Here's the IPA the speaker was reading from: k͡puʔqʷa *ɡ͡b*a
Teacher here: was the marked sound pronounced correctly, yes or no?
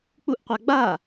yes